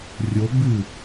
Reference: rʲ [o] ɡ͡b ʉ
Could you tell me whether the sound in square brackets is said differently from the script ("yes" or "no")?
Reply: no